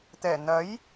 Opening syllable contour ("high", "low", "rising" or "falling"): low